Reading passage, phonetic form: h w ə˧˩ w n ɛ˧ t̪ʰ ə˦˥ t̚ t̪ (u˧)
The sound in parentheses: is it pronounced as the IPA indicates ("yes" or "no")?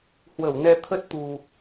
no